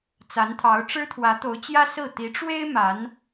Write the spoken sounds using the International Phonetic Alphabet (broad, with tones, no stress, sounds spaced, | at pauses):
t͡s a˧˥ n t̪ʰ ɑ˧˥ ʊ̯ ʈ͡ʂ ɻ̩˥ t̪ʰ w ä˧˥ t̪ o˧˥ ʊ̯ t͡ɕ j ä˥ s ɹ̩˥˩ t̪ i˧˥ ʈ͡ʂ w e˥ ɪ̯ m a˧˥ n